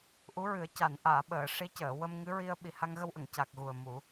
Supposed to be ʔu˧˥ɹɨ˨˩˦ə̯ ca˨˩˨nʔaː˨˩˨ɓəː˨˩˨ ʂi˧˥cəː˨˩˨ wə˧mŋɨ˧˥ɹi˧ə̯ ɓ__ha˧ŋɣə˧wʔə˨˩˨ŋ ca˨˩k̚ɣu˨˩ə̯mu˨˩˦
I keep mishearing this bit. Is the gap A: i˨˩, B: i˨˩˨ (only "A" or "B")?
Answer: A